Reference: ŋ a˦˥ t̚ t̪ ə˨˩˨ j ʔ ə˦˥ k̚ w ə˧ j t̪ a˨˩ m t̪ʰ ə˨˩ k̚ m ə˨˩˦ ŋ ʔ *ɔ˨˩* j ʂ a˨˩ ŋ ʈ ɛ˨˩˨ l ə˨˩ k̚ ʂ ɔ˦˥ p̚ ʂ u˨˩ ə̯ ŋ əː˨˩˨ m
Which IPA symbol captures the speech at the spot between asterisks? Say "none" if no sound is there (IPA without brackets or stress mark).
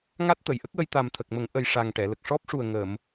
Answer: ə˨˩